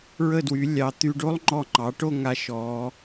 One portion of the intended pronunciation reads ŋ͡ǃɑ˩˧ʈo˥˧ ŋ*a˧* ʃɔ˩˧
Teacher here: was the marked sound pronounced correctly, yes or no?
yes